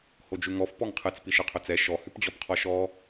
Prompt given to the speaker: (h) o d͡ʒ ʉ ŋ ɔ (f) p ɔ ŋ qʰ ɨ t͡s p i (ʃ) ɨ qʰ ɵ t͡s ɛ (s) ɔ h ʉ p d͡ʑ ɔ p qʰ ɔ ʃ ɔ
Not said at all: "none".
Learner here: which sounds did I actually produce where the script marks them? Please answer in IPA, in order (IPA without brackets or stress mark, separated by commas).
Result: h, f, ʃ, ʃ